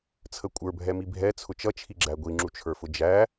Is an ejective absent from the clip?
no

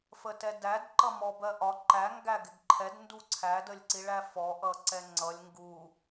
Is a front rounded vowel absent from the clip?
yes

